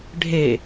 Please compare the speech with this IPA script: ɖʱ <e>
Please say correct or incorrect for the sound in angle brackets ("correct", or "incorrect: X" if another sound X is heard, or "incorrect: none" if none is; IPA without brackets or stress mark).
correct